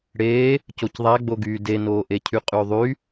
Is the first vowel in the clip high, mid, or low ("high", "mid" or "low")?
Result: mid